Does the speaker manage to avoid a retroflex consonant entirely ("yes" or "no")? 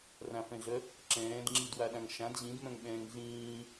yes